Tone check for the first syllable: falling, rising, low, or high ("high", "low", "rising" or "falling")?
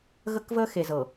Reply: high